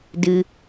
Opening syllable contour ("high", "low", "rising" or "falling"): low